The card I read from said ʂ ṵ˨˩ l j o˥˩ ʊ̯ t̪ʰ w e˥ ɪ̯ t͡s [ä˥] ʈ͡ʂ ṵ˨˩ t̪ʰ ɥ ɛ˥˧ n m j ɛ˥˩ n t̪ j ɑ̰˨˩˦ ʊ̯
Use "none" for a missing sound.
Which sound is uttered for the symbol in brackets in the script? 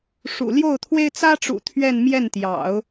ä˥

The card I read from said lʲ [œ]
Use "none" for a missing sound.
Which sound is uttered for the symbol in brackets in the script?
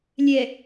ɛ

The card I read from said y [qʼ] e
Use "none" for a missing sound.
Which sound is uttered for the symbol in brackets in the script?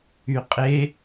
qʼ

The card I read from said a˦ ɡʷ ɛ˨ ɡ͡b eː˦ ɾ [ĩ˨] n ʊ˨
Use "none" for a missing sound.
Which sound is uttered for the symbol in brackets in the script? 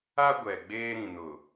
ĩ˨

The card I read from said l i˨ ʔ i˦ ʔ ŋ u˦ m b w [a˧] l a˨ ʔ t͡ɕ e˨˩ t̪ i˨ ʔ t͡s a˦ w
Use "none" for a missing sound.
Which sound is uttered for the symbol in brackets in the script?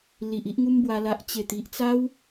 a˧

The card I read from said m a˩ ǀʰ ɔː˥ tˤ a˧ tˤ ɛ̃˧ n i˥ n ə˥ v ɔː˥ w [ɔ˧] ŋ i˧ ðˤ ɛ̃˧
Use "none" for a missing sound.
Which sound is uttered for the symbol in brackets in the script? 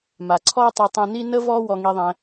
ɔ˧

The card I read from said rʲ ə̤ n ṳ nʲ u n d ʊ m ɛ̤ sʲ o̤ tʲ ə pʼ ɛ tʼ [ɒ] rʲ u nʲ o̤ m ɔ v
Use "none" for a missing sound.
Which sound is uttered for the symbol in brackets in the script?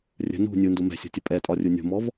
ɒ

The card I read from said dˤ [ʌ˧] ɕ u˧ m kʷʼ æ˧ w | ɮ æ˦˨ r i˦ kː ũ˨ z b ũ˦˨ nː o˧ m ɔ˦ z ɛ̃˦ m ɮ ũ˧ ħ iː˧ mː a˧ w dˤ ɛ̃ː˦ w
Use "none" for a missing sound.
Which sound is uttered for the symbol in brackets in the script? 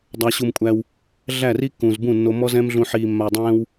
a˧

